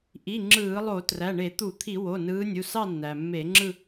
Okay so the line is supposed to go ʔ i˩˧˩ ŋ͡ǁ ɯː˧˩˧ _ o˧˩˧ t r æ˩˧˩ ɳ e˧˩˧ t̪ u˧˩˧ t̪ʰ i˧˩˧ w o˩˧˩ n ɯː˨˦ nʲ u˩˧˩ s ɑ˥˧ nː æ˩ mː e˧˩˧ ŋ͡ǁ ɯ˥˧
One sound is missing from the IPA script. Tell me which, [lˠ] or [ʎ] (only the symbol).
lˠ